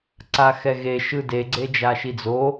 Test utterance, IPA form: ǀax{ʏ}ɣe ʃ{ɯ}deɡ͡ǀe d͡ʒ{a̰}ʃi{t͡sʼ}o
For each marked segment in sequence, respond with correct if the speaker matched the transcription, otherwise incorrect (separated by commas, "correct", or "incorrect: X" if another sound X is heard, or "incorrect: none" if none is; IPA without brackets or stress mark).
incorrect: ɛ, correct, incorrect: a, incorrect: d͡z